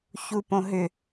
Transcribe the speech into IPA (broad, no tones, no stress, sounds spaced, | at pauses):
ç u p õ ɦ ʏ